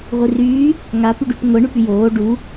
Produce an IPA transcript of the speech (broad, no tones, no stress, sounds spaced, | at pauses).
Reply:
ʁʷ i r yː | ŋ a p y ɖ y p ŋʷ e ɳ y p y j oː ɖ u